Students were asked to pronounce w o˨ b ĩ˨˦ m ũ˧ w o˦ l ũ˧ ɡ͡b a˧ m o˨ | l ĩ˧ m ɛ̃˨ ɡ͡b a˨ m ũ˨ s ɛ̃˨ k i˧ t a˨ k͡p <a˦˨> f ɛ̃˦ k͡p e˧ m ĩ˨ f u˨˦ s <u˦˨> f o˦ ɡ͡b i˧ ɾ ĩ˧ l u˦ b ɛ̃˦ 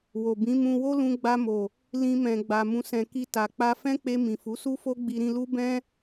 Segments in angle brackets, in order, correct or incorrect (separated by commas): incorrect, incorrect